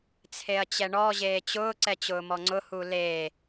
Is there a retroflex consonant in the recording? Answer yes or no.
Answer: yes